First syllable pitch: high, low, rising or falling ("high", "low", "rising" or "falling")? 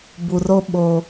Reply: low